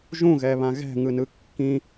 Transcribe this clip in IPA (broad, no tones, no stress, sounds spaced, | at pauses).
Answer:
ʒ ũ ɣ ɛ β ã ɣ ɛ̤ ŋ ɯ n ɯ kː ĩ